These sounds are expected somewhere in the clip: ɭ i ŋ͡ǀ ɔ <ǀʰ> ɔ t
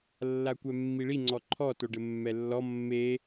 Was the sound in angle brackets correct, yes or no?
no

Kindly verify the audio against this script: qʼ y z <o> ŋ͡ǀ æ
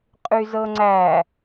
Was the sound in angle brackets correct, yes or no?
no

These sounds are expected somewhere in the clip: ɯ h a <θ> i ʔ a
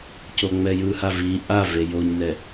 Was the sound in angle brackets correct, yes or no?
no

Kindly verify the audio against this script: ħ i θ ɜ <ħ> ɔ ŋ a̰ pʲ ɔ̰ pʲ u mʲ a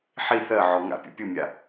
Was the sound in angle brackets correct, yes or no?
no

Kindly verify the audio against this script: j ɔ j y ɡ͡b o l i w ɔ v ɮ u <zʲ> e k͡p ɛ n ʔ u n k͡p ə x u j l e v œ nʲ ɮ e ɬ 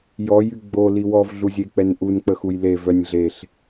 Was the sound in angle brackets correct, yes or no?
yes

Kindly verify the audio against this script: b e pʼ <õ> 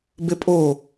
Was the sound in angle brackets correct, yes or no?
no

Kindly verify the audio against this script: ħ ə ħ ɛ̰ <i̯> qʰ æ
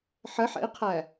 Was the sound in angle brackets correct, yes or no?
yes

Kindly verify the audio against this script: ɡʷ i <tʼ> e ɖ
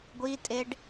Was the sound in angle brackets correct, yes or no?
yes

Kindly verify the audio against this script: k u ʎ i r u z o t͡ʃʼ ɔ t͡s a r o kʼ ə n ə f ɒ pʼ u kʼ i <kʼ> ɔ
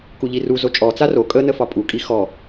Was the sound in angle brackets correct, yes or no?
no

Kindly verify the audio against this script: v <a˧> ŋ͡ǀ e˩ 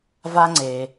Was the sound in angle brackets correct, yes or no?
yes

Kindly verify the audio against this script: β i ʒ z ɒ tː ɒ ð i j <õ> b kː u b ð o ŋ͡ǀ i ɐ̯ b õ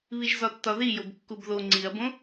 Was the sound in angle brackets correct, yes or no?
no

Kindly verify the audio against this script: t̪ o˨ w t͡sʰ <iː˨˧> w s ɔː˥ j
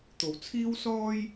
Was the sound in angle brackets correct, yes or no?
no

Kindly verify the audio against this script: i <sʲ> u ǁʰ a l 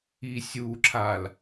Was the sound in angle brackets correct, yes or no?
yes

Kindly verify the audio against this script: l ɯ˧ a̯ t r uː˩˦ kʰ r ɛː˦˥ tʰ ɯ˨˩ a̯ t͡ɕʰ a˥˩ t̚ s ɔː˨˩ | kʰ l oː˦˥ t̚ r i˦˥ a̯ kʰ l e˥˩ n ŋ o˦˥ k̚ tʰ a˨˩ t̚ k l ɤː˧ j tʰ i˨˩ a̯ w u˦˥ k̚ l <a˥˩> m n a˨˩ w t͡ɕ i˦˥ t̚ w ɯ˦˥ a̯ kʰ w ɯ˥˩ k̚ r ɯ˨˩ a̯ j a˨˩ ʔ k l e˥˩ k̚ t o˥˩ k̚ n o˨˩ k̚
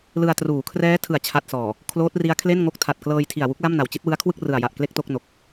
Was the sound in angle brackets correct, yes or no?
yes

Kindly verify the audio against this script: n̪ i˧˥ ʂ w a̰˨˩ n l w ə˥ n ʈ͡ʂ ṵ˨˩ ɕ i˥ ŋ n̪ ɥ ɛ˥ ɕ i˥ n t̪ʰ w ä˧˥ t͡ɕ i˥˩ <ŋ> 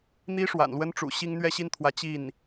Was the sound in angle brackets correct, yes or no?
no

